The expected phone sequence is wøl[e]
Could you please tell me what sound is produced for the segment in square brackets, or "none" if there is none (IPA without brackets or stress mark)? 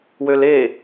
e